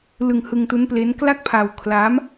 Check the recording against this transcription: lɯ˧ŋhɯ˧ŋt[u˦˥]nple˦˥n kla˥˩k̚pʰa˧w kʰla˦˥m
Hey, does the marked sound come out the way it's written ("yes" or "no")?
yes